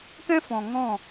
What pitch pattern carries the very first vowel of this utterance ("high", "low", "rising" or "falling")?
high